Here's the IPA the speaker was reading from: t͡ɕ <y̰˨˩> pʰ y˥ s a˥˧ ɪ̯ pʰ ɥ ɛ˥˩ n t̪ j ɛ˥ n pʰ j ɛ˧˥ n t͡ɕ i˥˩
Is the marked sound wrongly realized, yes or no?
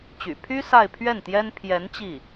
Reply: no